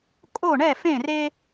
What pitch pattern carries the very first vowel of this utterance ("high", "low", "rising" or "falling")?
falling